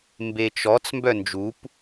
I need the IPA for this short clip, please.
m b e t͡ʃ ɔ t͡s m b œ n d͡ʒ u p

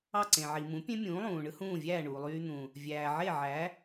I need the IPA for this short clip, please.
ɑ˥˩ ǀ ẽ˩ ʕ i˩ m ũ˩˥ pʲ ẽ˥ mʲ ũː˩˥ lˠ ũː˩ ɳ ɯ˥ h ũː˥˩ vʲ æː˥˩ ɳ uː˩ lˠ yː˧ n̪ ũ˩ | vʲ æː˩ ʕ e˥˩ ʕ æ˩˥

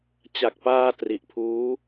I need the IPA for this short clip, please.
t͡ɕ a˨˩ k̚ p aː˧ t r i˨˩ ʔ pʰ uː˦˥

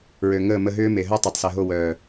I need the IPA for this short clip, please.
ɹ ø˨ ŋ əː˦˨ m ə˧ ɦ ʏː˦ m e˨ ɦ œ˦ tˤ o˨ tˤ s ɛ˨ ɦ o˦˨ w œː˨

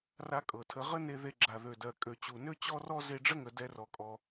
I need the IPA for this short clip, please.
r a˥ kʼ ɤ˩ tʰ ə˧ ʁ ə˥ n e˧ ð e˧ ɡ͡ǁ a˩ ð ø˩ d ɜ˩ kʼ ø˩ t͡ɕ u˩ n ø˥ t͡ɕ ɔ˥ r ɔ˥ z e˧ ɖ͡ʐ ə˥ ŋ ə˩ d ɛ˧ r ɔ˩ kʼ ɔ˩

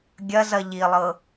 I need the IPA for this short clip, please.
ɡʲ ɐ z ɐ ʎ i lˠ ɤ

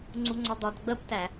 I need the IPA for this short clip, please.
ŋ͡ǀ u ŋ͡ǀ ɒ d̪ ɒ d ɡ͡b ə b t æ

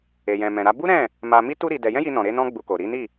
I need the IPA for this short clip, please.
e˨ j ɛ̃˨ m ɛ̃˨ ɾ a˧ b u˦ ɾ ɛ̃˦˨ | m a˧ m i˦ t u˦ ɾ i˧ d ɛ˧ j ɛ̃˦ j i˧ n ɔ̃˨ ɾ e˧ n ɔ̃˦ ɡ͡b u˧ k o˨ ɾ i˨˦ n i˦˨

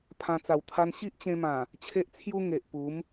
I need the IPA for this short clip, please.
pʰ ã˧ t͡s a˨˩ w t̪ʰ a˧ n ɕ i˦ ʔ t͡ɕ ẽ˧ m ã˨˩ | t͡ɕʰ e˦ ʔ t͡sʰ j u˦ ŋ e˨ ʔ p u˨˦ m

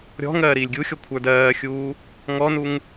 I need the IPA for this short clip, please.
ɾʲ ɔ̤ ŋ ɜː ɾ iː lʲ ɡʲ u xʲ ɔ kʷʰ ə˞ d ɜː xʲ uː | ŋ ɔ n u ŋ

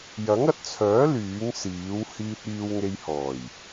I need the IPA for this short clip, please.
j ɐ˨˥ ŋ ɐ˨ t̚ t͡sʰ œː˨˥ l yː˨˥ ŋ s iː˨˥ w h iː˧ t̚ iː˧ w ŋ e˧ j h ɔː˨˩ j

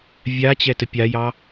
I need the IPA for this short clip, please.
vʲ a t͡ɕ ɛ t ə pʲ a j ɑ

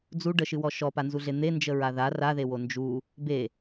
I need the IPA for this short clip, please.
d͡z u ɖ ə ʃ ɨ w ɔ ʃ ɔ p a n z u ɮ e n̪ e n d͡ʒ ə ɹ a ð a r a ð e w o n d͡ʒ u | b e

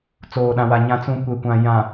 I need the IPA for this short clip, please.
t͡s oː˨ ɗ ã˨ w a˨ ɲ ã˨ t͡s ũ˨ kʷ e˨ kʷ ã˨ j ã˨

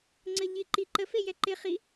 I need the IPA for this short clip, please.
ŋ͡ǀ ə ʎ i ǃ i ǃ ə f e j ɛ ǃ ɪ χ i

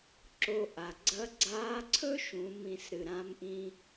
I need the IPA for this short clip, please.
ǁ o˧ ʔ a˩ ɡ͡ǀ ɐ˧˥ ɡ͡ǀ aː˧˥ ǀʰ ɵ˥ ʃ ũ˩˧ m ĩ˩˧ s ɾ ɨ˩ ɾ ã˧˥ m ʔ ĩ˧

